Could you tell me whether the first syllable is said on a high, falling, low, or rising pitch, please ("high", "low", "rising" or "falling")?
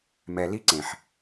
low